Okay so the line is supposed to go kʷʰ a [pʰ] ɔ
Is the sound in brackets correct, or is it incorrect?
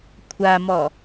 incorrect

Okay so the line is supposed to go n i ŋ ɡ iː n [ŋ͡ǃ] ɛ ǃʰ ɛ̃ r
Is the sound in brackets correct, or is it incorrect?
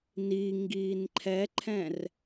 incorrect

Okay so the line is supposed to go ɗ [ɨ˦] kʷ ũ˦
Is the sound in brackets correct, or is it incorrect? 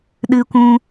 correct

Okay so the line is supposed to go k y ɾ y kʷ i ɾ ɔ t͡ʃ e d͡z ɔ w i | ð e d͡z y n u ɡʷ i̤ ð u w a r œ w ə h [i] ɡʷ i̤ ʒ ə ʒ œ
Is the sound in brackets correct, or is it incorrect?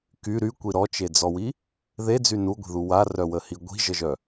correct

